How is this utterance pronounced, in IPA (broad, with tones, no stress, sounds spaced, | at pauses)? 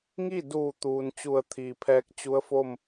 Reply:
ŋ i˥˨ d uː˧˩ t̪ uː˩ n t͡ɕ u˧˩ ə̯ t̪ʰ iː˩ pʰ ɛː˧˥ k̚ t͡ɕ u˧˥ ə̯ f o˥˨ m